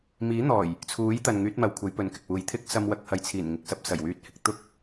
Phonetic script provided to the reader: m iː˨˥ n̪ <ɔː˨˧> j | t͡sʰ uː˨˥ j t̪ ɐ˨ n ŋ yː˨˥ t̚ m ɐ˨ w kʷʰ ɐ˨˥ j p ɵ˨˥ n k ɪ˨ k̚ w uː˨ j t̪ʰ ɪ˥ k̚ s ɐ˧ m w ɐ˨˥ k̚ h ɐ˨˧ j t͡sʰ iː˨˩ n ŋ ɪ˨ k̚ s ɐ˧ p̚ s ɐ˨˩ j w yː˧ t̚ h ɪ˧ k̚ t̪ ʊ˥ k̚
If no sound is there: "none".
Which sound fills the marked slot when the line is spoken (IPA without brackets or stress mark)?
ɔː˨˩